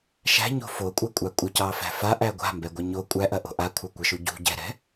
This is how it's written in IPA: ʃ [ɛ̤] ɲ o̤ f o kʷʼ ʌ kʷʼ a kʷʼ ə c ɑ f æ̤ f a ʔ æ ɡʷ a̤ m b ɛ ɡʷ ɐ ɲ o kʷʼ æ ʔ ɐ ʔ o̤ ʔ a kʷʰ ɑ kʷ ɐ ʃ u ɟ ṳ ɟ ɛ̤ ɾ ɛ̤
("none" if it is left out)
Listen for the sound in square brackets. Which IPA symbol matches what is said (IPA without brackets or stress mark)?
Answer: æ̤